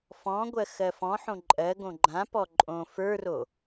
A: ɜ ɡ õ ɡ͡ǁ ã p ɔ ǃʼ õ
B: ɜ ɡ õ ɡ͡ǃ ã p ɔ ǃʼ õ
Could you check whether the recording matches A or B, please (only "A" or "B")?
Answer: B